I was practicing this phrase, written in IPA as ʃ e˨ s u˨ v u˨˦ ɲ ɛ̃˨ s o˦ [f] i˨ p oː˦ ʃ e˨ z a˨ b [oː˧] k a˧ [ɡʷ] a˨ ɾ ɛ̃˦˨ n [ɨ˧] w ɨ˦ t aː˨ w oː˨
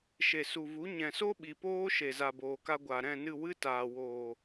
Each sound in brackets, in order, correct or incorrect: incorrect, incorrect, correct, incorrect

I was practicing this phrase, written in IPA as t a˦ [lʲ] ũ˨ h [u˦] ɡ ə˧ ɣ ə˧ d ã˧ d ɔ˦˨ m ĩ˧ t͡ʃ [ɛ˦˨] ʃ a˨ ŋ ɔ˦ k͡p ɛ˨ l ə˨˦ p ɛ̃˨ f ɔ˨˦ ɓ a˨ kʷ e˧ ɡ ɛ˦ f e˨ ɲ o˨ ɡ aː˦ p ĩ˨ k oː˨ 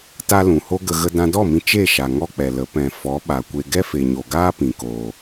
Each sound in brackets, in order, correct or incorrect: incorrect, incorrect, incorrect

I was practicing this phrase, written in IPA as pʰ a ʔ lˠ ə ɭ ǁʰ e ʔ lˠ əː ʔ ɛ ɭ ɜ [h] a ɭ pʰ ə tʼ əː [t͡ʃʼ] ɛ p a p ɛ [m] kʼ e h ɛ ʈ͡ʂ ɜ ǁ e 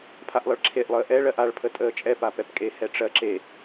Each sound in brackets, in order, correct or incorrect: incorrect, correct, incorrect

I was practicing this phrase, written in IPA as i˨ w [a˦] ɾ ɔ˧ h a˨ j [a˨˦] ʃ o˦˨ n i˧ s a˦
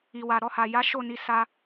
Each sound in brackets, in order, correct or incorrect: incorrect, correct

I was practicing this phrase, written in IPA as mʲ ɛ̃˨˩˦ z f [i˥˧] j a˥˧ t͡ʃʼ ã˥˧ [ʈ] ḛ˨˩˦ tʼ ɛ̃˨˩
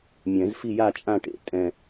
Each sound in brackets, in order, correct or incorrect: correct, correct

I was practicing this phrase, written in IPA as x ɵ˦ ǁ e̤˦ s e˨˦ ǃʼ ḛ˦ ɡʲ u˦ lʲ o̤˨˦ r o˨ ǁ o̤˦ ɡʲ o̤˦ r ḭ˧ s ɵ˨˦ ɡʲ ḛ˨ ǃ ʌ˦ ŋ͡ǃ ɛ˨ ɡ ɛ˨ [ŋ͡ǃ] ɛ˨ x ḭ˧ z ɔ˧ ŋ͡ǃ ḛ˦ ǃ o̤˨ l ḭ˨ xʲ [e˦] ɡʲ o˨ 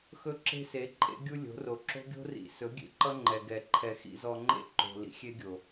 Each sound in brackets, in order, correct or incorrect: incorrect, correct

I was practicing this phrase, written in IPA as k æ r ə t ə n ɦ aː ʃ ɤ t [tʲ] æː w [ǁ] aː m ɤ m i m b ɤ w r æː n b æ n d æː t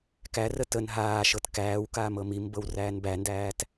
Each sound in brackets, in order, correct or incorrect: incorrect, incorrect

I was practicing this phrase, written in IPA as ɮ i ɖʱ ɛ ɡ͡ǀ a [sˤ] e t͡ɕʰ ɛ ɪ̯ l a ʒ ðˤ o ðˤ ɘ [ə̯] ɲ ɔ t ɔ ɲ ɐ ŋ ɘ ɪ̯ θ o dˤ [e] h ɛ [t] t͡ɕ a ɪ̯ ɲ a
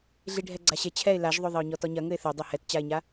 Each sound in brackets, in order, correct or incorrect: incorrect, incorrect, incorrect, correct

